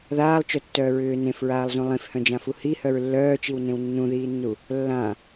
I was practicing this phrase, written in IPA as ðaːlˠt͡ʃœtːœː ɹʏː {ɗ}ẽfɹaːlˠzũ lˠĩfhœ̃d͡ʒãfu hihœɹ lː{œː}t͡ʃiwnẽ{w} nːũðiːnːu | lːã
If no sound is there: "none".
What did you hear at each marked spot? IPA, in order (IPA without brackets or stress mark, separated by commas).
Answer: n, œː, w